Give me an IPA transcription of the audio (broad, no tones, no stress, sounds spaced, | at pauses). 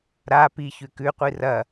ɾ a p i ç ʉ k ʉ qʷ i r ɐ